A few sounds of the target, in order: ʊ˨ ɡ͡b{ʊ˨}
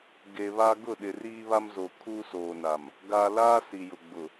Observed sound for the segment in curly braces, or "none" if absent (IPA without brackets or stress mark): ʊ˨